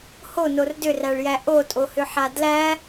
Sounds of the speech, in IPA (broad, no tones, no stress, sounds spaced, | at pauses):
h o n o r d ʏ r æ ɭ j æ ʔ o tʼ o h ʏ ħ a d l æ